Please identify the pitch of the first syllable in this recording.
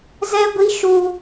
high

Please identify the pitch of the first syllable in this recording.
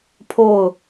falling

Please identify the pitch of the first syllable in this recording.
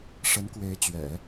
rising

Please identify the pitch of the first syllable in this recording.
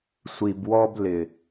low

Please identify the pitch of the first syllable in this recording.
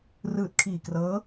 low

